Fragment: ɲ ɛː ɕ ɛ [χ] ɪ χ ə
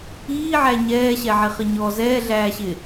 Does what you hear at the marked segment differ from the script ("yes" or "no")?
yes